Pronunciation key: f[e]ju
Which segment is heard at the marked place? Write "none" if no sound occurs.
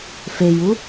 e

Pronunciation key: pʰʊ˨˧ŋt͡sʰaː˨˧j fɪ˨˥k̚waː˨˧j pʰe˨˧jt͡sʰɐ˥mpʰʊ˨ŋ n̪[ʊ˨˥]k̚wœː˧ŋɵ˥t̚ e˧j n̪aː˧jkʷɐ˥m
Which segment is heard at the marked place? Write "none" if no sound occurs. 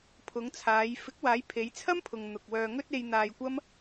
ʊ˨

